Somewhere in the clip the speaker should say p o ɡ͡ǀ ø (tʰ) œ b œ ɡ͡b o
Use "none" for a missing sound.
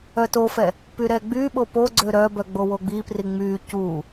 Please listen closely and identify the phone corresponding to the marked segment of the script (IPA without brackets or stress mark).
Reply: ɾ